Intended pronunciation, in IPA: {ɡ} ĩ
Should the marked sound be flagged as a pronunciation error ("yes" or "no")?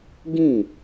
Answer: no